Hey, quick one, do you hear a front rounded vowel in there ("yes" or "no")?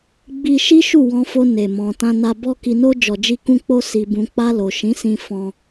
no